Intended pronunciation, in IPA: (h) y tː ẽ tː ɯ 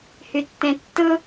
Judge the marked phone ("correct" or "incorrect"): correct